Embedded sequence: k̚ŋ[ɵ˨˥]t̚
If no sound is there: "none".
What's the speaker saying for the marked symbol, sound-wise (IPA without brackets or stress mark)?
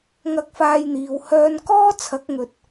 ɵ˨